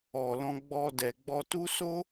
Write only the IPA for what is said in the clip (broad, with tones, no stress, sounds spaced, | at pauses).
ɔ˨ l ɔ̃˧ ɡ͡b ɔ˧ d ɛ˨ ɡ͡b ɔ˧ t u˦ s o˦